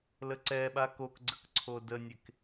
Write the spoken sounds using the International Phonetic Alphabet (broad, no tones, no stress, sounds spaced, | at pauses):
l ə ǀ ɛ ɓ a k o k ɡ͡ǀ ə k ǀʰ o d ə nʲ e k